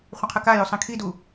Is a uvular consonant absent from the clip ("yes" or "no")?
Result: no